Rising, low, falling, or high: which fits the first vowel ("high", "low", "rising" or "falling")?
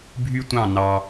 high